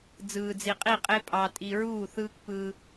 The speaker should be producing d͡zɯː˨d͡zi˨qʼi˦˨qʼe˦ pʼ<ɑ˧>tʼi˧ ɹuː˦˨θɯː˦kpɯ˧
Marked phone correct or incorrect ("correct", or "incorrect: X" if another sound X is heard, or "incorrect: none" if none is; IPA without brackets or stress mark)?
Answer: correct